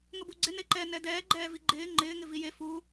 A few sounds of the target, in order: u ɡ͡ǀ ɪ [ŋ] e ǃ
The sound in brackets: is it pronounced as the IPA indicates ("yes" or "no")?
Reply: no